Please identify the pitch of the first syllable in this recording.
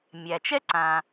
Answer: low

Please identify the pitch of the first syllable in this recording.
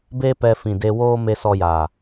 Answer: high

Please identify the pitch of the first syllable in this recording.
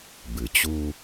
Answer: low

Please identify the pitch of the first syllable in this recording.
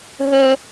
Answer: high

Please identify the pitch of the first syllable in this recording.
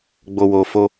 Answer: low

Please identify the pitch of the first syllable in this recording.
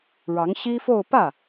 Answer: rising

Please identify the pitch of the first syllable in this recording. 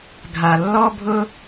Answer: low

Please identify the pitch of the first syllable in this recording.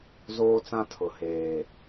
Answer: high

